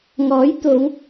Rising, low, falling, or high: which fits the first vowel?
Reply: rising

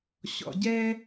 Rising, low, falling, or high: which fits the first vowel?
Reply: low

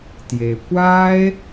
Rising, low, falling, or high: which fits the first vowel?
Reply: low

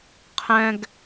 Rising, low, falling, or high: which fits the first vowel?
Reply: high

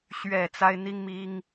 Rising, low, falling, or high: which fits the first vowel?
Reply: low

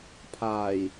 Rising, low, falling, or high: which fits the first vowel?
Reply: low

